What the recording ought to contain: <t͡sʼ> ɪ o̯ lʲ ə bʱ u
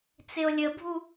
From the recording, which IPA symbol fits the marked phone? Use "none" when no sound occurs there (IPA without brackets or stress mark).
t͡s